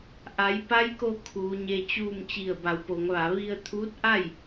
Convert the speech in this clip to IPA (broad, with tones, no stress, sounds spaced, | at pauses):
ʔ a˩˧ j p a˧˥ j k o˧ kʰ uː˩˧ ɲ e˧ t͡ɕ uː˥˨ m t͡ɕ i˧˩ ə̯ b a˩˧ w p o˩˧ ŋ ʋ a˩˧ ʋ i˧ ə̯ t̪ʰ uː˧˥ t̚ ʔ a˥˨ j